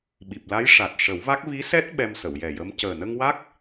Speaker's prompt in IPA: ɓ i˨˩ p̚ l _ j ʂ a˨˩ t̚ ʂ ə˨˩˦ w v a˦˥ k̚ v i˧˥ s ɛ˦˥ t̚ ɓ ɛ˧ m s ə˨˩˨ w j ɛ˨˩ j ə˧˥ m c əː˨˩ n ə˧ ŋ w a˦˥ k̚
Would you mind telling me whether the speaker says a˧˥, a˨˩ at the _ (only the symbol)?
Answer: a˧˥